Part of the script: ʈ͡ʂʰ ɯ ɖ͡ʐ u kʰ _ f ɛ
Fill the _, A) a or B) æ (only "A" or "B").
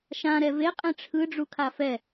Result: A